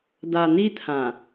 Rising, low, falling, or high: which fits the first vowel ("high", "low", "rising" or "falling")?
low